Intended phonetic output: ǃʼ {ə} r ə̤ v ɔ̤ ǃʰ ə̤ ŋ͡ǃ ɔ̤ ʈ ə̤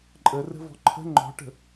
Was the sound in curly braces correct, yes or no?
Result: yes